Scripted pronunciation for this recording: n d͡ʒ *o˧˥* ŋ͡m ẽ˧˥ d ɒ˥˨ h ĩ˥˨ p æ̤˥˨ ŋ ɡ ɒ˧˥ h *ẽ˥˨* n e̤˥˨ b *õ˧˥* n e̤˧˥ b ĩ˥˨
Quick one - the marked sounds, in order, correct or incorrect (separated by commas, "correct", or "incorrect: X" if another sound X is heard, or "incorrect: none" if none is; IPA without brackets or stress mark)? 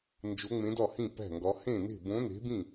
correct, correct, correct